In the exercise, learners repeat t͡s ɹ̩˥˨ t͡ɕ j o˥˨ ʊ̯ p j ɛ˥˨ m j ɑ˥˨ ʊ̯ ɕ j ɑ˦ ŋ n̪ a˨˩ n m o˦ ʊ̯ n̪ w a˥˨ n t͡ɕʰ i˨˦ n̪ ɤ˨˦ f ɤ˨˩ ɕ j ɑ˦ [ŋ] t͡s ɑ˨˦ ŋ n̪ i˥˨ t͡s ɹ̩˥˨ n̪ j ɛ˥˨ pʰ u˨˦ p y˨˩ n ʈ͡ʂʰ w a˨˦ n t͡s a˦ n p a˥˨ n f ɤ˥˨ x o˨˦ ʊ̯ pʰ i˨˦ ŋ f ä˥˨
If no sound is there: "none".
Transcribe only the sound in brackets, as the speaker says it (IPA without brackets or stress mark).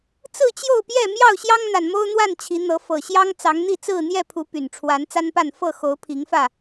ŋ